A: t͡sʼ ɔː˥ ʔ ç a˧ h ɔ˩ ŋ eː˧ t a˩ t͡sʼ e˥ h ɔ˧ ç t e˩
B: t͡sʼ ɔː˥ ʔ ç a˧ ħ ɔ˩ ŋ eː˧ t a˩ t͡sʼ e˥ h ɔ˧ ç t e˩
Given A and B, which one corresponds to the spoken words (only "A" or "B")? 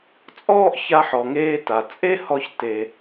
B